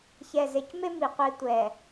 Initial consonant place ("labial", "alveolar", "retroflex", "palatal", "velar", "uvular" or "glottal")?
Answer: palatal